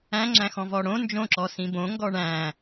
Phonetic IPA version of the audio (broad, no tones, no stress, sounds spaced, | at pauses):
æ̃ ŋ͡ǁ æ̃ x ɔ̃ v ɔ ɽ õ n d͡ʒ õ ǁ ɔ s ĩ b õ ŋ ɡ ɔ ɳ æ̃